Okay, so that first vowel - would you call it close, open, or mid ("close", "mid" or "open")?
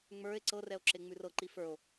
mid